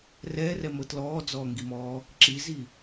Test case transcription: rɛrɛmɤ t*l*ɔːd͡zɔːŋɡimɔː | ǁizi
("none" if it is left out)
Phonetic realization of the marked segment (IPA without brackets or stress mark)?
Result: l